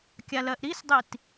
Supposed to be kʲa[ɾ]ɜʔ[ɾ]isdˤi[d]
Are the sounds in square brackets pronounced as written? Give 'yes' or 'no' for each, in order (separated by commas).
no, yes, no